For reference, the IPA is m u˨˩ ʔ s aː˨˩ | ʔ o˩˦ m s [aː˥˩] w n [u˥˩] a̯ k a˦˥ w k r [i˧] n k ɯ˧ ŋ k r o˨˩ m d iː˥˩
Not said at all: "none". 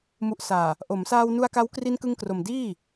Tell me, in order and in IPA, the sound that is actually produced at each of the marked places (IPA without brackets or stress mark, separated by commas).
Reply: aː˧, u˧, i˧